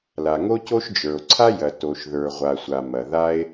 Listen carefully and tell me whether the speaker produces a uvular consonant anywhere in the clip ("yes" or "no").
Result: yes